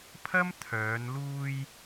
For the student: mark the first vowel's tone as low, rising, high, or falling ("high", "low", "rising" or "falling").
high